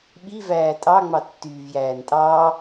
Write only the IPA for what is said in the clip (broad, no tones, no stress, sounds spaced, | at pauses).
ɓ i v æː tʼ ɑ ŋ͡m ɑ tː yː v j æː n tʼ ɑː